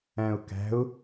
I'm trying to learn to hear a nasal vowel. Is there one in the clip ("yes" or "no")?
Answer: yes